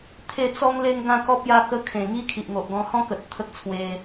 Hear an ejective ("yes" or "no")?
no